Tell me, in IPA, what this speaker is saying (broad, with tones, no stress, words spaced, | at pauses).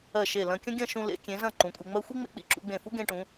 ɜ˧˩ʃe˧˩ lɐ̃˧kʲɐ̃˥ ɡʲɐ̃˥˧ ʃũ˧lḛ˩˧kʲẽ˩˧ zɐ̃˥˧ǃũ˩˧kʷʼe˧ŋ͡mɜ˥ xʷi˥ ŋ͡mḛ˧k͡pḭ˧ ǁṵ˧ɡ͡bẽ˧˩fu˥ ɡẽ˧ʈũ˩˧